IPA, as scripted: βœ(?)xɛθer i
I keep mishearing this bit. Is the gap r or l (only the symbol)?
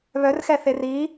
r